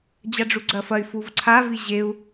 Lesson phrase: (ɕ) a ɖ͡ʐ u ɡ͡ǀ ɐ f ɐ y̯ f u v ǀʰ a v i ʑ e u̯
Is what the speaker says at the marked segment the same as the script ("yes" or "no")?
no